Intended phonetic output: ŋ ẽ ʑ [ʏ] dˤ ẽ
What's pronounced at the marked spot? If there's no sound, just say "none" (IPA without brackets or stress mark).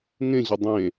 ʏ